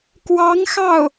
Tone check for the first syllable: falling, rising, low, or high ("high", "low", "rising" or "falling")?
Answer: rising